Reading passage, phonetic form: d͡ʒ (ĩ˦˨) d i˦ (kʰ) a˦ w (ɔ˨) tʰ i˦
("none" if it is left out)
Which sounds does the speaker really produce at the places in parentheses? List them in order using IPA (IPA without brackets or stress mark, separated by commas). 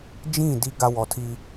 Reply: ĩ˦˨, ɡ, ɔ˨